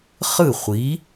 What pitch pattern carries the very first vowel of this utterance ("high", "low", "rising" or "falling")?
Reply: falling